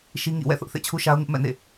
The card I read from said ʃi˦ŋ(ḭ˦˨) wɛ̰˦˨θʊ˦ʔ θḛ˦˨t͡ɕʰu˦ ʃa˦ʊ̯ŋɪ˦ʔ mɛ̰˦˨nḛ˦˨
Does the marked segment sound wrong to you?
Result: no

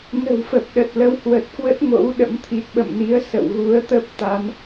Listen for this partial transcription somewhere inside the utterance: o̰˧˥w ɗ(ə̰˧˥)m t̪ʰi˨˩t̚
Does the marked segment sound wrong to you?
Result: no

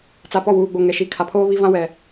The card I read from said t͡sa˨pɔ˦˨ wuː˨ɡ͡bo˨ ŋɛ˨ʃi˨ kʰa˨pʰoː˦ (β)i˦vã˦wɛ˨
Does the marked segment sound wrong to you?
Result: no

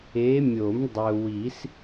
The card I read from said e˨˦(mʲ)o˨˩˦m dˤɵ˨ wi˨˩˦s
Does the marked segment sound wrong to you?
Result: no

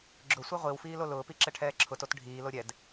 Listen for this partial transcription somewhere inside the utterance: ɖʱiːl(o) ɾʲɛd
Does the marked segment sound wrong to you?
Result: no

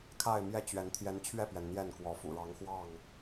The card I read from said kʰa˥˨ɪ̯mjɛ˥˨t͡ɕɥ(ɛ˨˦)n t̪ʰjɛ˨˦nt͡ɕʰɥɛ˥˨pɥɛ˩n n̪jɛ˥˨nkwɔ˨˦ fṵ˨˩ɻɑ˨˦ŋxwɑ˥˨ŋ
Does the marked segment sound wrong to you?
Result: no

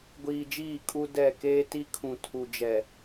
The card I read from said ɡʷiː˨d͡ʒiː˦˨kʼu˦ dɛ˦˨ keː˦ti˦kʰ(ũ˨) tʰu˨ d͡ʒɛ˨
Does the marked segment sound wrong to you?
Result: no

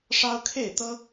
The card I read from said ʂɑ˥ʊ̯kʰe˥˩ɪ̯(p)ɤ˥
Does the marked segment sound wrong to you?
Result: yes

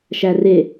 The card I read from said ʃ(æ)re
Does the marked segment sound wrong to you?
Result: no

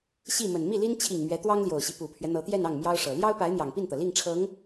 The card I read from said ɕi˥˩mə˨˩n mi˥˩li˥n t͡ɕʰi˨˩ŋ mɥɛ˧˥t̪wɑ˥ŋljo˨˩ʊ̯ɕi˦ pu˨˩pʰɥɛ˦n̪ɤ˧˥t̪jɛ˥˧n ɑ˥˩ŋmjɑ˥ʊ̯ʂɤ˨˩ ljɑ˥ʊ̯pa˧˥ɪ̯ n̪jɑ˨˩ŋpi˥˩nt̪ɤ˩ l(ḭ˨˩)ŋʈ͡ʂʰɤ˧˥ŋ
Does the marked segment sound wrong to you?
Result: yes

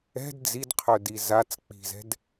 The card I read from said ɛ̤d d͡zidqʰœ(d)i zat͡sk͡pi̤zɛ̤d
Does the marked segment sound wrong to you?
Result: no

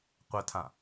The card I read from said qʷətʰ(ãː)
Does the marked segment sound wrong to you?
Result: yes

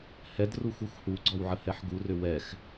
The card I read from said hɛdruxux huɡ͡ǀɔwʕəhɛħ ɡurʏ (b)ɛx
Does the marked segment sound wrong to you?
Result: yes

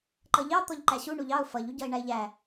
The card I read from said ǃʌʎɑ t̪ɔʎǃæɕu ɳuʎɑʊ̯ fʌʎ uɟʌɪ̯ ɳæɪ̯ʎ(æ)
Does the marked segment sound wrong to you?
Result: no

